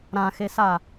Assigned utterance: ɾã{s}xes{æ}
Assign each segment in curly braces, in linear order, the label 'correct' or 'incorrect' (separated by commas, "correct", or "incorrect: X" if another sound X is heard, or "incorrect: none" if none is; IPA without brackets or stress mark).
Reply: incorrect: none, incorrect: a